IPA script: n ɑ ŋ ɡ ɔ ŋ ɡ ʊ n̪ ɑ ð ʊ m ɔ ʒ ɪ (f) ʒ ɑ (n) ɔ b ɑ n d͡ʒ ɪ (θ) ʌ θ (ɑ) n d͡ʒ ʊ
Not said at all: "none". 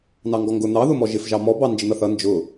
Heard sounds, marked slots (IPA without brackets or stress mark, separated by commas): f, m, n̪, ʌ